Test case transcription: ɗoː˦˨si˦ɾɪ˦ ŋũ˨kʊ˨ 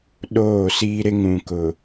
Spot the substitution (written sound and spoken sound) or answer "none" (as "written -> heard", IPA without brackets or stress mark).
i˦ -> iː˦